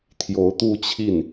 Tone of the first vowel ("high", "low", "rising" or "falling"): rising